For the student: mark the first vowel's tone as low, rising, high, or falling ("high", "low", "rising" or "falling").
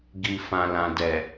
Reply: low